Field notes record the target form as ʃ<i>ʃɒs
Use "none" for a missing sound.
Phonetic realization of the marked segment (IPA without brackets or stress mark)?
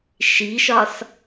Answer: i